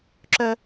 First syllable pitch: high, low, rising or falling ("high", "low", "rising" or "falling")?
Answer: low